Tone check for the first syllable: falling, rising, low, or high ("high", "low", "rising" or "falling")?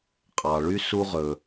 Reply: low